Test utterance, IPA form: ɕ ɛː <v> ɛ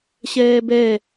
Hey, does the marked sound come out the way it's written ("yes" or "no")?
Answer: no